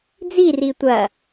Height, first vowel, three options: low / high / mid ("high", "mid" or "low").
high